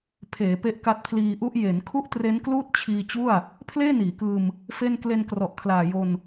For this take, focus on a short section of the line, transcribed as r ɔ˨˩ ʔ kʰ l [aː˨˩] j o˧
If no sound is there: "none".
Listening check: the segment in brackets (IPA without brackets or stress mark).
aː˨˩